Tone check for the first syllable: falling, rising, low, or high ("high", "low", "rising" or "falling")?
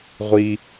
low